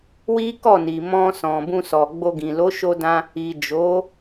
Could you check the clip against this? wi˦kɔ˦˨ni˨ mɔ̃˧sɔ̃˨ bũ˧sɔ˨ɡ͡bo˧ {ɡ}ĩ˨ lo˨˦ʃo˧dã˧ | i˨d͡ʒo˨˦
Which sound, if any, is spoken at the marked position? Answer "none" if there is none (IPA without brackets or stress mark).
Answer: ɡ